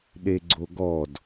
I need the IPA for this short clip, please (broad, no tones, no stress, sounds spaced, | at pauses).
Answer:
ɗ e ɡ͡ǀ o ɡ ɔ d